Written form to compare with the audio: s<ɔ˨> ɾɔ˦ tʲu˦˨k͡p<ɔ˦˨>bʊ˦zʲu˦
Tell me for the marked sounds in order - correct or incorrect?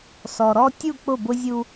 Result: correct, incorrect

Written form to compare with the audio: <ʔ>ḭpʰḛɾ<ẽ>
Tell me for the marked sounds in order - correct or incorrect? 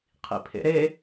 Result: incorrect, incorrect

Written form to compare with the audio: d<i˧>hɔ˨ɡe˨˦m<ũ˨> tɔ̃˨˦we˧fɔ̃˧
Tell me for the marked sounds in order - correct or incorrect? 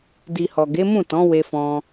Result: incorrect, incorrect

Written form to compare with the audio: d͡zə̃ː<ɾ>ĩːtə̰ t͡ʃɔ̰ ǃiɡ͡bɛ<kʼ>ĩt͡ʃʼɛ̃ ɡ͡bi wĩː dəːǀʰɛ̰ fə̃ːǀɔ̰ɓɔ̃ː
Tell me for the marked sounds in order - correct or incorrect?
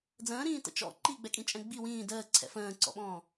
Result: correct, correct

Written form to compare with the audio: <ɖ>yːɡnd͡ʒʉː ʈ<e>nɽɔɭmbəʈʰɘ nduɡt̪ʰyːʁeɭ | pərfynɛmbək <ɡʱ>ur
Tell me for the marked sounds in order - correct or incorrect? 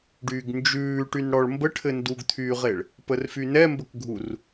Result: correct, incorrect, correct

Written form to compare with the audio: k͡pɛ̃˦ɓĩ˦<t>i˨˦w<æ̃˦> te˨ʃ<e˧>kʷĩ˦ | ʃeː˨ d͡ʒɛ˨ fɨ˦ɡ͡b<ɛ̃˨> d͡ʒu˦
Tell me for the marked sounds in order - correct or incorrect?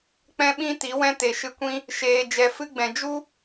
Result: correct, incorrect, incorrect, correct

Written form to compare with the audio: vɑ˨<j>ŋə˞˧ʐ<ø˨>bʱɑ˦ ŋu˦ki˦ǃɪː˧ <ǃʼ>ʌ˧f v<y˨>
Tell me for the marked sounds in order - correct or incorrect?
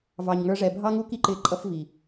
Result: incorrect, incorrect, correct, incorrect

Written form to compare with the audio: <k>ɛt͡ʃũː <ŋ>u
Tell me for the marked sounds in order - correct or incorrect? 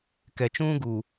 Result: correct, incorrect

